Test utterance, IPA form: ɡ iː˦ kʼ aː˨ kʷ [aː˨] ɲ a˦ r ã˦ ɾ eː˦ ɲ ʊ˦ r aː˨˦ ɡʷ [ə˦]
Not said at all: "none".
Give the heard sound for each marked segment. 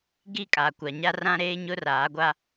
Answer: a˨, a˦

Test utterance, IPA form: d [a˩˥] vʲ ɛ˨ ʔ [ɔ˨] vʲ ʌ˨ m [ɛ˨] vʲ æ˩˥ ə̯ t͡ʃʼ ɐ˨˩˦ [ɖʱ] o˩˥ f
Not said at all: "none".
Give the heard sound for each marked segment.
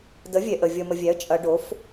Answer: ə˩˥, ə˨, ə˨, ɖ

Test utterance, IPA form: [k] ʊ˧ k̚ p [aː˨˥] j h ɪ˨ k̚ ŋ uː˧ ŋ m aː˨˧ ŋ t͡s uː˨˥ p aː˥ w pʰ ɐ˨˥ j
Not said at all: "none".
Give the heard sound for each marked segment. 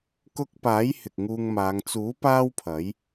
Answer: k, aː˨˥

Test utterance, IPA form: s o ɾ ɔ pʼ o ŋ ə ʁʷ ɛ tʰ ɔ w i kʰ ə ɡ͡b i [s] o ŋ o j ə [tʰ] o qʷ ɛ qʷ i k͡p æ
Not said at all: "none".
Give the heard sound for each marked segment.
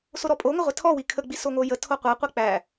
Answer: s, tʰ

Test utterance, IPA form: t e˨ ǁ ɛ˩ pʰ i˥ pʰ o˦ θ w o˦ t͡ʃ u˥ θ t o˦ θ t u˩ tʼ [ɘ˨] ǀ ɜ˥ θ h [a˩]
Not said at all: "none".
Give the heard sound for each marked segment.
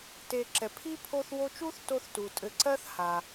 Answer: ɘ˨, a˩

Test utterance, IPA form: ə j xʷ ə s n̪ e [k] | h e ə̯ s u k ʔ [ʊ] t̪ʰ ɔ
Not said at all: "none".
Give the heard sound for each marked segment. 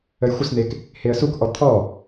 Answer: k, ɔ

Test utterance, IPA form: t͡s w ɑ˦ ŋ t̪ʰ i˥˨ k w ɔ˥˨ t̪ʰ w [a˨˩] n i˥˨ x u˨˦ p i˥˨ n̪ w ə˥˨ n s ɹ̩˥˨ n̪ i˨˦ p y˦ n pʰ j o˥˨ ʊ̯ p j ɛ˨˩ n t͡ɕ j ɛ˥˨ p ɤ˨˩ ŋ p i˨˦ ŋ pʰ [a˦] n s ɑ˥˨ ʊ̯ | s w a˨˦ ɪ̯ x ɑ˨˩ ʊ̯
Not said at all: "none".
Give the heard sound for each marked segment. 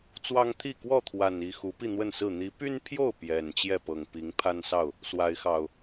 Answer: a˨˩, a˦

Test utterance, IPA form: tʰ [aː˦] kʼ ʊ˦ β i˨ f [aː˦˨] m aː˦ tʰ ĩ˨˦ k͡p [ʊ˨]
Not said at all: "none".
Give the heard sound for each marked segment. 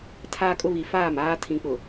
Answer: aː˦, aː˦˨, ʊ˨

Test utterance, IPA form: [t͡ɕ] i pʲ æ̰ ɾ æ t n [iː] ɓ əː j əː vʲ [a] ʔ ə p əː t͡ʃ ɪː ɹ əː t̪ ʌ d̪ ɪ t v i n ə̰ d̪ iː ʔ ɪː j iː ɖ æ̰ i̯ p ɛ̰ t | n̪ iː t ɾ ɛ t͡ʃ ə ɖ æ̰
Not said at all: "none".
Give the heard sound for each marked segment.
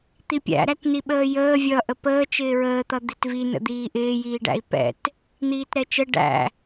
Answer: t̪, i, ʌ

